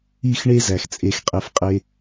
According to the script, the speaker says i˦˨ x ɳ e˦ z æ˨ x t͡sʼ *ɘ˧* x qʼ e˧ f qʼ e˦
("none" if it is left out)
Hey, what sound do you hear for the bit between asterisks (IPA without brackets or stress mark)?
e˧